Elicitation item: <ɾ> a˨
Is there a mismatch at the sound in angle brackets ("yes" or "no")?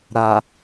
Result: no